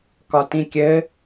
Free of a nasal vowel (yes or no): no